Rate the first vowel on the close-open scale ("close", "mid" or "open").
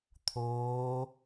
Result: mid